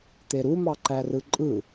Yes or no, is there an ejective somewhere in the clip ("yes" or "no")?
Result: yes